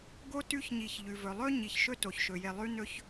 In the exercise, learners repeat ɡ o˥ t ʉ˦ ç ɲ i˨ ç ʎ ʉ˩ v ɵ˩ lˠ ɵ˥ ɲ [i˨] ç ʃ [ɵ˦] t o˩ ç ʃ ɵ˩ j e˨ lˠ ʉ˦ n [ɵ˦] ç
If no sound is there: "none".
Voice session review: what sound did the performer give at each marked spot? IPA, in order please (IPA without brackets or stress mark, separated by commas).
i˩, ɵ˦, ɵ˦